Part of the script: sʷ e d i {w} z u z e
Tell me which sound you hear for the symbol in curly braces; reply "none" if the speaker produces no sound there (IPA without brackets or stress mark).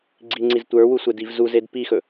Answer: v